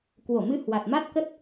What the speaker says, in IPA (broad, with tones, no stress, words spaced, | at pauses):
kwo˧˩mɨ˧ hwa˨˩t̚ ma˦˥t̚kə˦˥t̚